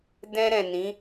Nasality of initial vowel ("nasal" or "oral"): nasal